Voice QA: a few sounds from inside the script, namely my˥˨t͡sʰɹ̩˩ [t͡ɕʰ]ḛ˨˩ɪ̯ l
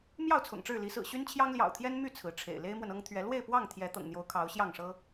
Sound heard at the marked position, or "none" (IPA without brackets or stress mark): ʈ͡ʂʰ